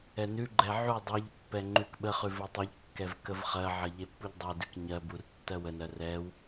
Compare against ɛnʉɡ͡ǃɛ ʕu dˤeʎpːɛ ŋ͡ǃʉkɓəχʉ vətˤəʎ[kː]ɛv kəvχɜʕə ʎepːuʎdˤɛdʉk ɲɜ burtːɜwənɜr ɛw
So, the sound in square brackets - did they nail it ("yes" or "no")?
yes